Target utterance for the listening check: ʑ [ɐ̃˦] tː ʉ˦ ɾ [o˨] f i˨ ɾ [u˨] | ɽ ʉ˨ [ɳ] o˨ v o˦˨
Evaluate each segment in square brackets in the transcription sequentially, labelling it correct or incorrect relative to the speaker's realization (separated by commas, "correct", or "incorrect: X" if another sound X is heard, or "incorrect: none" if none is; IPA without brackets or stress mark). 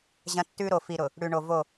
correct, correct, incorrect: ʊ˨, correct